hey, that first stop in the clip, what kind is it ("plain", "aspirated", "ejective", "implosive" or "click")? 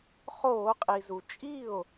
ejective